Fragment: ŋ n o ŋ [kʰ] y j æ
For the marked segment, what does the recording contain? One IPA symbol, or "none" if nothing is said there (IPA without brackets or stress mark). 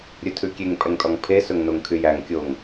kʰ